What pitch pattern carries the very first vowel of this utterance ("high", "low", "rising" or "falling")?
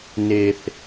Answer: high